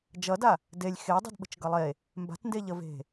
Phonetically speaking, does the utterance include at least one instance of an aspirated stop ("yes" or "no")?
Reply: no